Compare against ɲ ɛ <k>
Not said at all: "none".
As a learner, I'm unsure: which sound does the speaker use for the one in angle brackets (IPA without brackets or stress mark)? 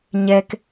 k